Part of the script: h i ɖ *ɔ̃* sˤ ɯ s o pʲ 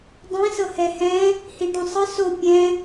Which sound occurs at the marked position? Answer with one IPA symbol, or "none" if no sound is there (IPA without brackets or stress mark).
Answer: ɔ̃